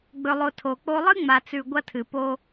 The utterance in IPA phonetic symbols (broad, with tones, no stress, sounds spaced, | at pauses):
ɡ͡b ɵ˨ lˠ o˨ tʰ o˨ k͡p o˦ lˠ ɨ˦ ŋ͡m a˨ t͡s ʉ˨ ɡʷ ɐ˦ tʰ ɨ˨ p o˦